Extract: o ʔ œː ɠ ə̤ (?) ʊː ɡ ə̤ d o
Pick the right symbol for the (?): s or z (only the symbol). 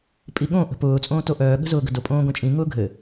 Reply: z